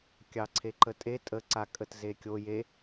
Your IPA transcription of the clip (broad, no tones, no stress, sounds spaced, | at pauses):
kʲ ɑ ǀʰ e ǃ ə tʼ e tʼ ə ǀ a kʼ ə t z e kʲ o j e